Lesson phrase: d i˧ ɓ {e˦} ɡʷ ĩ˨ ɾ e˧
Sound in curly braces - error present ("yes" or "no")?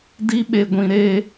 yes